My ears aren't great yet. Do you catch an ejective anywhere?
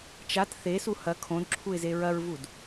no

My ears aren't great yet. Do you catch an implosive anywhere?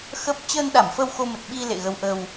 yes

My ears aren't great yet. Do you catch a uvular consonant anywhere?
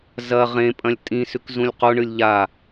yes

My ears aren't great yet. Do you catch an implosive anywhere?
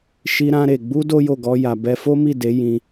no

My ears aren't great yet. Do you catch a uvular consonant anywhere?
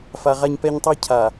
yes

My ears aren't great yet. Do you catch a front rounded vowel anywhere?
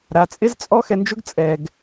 no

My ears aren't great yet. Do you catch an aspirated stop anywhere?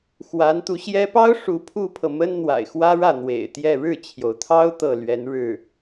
yes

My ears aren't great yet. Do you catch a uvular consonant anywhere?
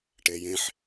no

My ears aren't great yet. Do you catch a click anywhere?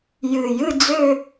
no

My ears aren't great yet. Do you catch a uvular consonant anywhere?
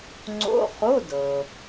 yes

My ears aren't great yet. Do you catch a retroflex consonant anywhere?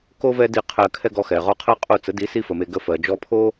no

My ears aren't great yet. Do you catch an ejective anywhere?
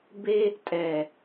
yes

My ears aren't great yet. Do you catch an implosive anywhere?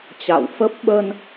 yes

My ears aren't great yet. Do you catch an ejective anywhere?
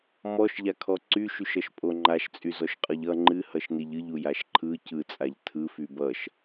yes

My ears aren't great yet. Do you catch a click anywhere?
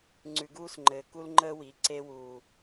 yes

